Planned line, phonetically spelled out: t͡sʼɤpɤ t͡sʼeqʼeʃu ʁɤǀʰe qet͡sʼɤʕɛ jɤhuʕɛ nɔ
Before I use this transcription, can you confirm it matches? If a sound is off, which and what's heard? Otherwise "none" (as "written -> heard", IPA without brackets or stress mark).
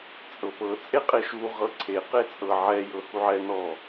none